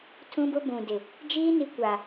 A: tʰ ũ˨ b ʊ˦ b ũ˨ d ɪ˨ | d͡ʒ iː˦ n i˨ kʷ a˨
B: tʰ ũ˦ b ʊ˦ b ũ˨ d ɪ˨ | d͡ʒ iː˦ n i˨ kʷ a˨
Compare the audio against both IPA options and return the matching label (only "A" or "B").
B